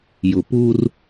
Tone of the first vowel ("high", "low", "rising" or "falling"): low